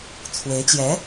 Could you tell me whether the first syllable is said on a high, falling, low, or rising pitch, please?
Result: rising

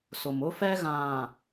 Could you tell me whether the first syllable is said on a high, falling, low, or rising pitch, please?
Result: low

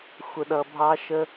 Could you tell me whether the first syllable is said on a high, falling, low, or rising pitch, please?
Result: low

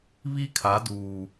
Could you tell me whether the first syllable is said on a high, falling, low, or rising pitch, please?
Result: high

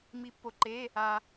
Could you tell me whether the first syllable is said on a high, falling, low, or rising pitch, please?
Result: rising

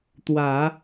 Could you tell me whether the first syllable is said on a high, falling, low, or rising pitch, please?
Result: low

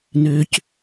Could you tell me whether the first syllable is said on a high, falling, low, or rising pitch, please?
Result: low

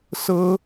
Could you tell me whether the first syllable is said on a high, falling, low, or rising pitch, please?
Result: high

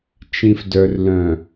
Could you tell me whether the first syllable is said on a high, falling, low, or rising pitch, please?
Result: low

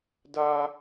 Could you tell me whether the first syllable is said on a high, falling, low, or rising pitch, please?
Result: high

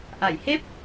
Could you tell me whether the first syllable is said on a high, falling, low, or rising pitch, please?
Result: low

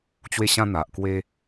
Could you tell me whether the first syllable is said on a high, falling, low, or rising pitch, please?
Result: high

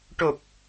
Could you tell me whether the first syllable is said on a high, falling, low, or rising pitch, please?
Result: low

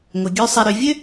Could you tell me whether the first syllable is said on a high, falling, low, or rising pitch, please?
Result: low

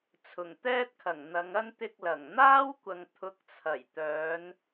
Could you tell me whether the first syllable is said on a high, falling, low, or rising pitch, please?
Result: low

